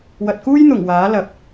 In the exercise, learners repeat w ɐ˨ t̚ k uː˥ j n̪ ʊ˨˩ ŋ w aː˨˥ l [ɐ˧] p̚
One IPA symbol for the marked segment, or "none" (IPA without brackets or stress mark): ɐ˨˥